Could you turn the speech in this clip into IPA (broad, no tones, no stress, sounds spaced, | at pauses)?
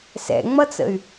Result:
s ɛ̰ ŋ͡m ʌ t͡s ə̰ y̯